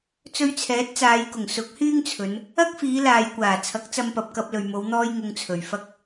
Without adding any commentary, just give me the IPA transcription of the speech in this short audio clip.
t͡s ɵ˧ ɥ t͡sʰ ɛː˨˥ t̚ t͡s aː˨˧ j k ʊ˨˩ ŋ s ʊ˨˥ k̚ h yː˥ ŋ t͡sʰ ɵ˨˧ n | ɐ˥ k̚ f iː˨˧ l aː˨ j kʷ aː˨˩ t͡sʰ ɐ˨˥ k̚ t͡s ɐ˧ m p ɐ˨ p̚ k ɐ˧ p̚ l ɵ˨ ɥ m o˨˧ w n̪ ɔː˥ j ŋ ʊ˧ ŋ t͡sʰ ɵ˨ ɥ f ɐ˥ k̚

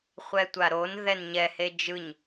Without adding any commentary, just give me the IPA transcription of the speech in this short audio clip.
χʷ ɛ tʷ a ɾ o n ð ɛ n ɲ ɛ h e d͡ʒ ɯ ɲ

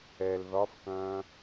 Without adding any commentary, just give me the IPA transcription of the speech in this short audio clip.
ɛ l ð ɒ f k ɐ̃ː

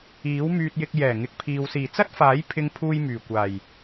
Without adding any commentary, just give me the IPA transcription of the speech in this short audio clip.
iː˨˥ w m yː˧ t̚ j ɪ˧ k̚ j ɛː˨˩ ŋ ɪ˨ k̚ pʰ iː˨ w s iː˨˩ t͡s ɐ˥ t̚ f aː˨˥ j pʰ ɪ˧ ŋ pʰ uː˧ j m yː˨˩ kʷ aː˨˩ j

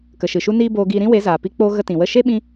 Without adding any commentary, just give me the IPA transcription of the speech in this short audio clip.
k ə˨ ʃ ɨ˨ ʃ u˧ n iː˦ b oː˧ ɡ iː˧ ɾ ĩ˦ w e˨˦ z aː˨ p i˧ k͡p o˧ ɣ ə˦ t ĩ˨ w ə˦˨ ʃ e˦ ɓ ĩ˧

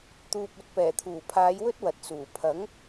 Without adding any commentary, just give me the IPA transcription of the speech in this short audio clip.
t̪ uː˨ p̚ ɵ˨˥ t̚ p ɛː˨˩ t̪ʰ uː˨˩ pʰ aː˨˧ j w ɵ˥ t̚ w ɐ˨ t̚ s uː˨˩ pʰ ɐ˨˥ ŋ

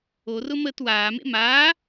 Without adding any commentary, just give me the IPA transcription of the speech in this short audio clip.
o r ʊ m əː t w aː m ḛ m aː

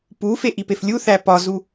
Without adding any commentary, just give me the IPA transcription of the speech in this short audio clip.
p u f e ʔ i p e f lʲ u θ æ p ɒ z u

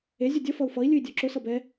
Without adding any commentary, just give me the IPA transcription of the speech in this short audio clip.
e zʲ ʊ dʲ ʌ f ʌ u̯ f ʌ i̯ lʲ ɨ i̯ dʲ ɔ ǁ ʊ s ʌ b ɛ

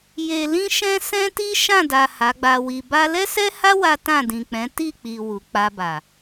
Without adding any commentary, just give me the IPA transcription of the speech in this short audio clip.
j e˨ l ĩ˧ ʃ ɛ̃˧ s ɛ̃˦ t i˦ ʃ ã˦˨ d a˨ h a˨˦ ɡ͡b a˧ w i˧ b a˧ l ɛ˦ s ɛ˦ h a˦ w a˦ t ã˦˨ d ĩ˨ k͡p ɛ̃˨˦ t i˦˨ k͡p i˨ w u˨ k͡p a˧ b a˨

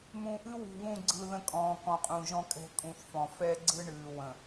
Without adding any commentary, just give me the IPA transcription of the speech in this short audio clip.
m ũ˨ ʔ ɨ˦ w ṳ˨ β ũ˦˨ ɡ͡ǀ ɯ˨ ð ə̃˦ kʼ ɔ̃ː˨ k ɔ̃˨ qʼ ũ˨ ʒ ɔ̃˦ kʼ ɛ̤˦ kʼ ũ˨ θ f ɔ̃˨ f ɛ˦ ɡ͡ǀ ɯ˦ ɳ ɨː˨ w ə̃˨

